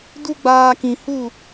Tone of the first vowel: high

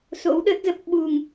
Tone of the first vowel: rising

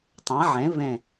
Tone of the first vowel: rising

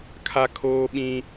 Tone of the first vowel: high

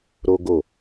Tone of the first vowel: high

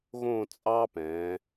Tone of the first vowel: falling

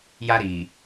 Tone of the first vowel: high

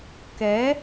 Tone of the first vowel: rising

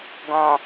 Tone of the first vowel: low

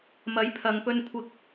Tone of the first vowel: rising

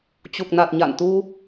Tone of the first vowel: low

